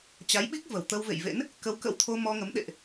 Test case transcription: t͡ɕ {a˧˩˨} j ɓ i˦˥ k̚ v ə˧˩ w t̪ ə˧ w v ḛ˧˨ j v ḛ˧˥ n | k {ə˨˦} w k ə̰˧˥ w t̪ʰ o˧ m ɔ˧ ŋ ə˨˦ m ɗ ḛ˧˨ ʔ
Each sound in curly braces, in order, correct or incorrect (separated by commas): incorrect, correct